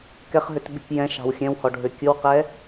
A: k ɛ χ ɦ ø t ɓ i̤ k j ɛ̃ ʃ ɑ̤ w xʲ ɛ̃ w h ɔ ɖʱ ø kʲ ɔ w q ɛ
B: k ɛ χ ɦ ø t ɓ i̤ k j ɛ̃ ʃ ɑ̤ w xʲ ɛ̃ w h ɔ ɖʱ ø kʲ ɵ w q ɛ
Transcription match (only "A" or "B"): B